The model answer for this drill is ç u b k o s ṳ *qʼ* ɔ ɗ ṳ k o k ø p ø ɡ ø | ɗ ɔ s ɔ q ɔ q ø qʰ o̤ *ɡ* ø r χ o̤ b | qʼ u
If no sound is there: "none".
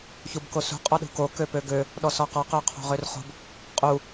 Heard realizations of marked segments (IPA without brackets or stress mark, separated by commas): qʼ, ʁ